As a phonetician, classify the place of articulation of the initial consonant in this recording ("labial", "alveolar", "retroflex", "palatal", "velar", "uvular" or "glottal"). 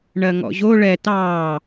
retroflex